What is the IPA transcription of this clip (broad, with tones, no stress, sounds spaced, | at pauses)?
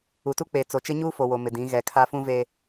u˨ t u˦ k͡p e˨ t͡s o˨ t͡ʃ ɪ˦ ɲ uː˦ f o˨ w o˨ m ɪ˨ d ĩ˨˦ ɣ ɛ˨ kʰ a˦ f ũ˦ v e˦